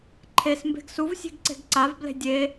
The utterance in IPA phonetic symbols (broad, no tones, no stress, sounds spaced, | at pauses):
ǃʰ e s m b e̤ ɡ s u v sʲ e̤ ɡ ǀ e̤ ɡ ǀ a v b l e̤ dʲ e